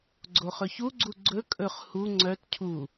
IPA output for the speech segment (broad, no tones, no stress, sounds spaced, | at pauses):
ɡ͡ǀ o χ ɵ ç u ɡ͡ǀ u ɡ͡ǀ ɵ kʼ ɵ χ h u ŋ͡ǀ œ t cʰ u